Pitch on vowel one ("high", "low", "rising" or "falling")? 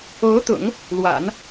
rising